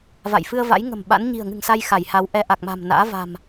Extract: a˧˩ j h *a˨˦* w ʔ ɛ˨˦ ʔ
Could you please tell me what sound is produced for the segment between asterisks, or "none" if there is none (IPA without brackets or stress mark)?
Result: a˨˦